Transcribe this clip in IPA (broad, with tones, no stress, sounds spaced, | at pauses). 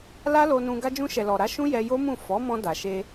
l a˦ l o˧ n ũ˧ ɡ a˧ d͡ʒ ũ˧ ʃ ɛ˨ l ɔ˨ ɾ a˨˦ ʃ ũ˦ j ɛ˧ j o˦ m ũ˦˨ f ɔ˨˦ m ɔ̃˧ d a˨ ʃ e˧